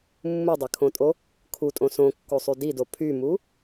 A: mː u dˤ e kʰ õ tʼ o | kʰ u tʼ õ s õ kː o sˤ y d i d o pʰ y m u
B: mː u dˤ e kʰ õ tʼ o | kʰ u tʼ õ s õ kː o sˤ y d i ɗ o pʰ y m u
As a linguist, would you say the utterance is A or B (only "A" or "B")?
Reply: A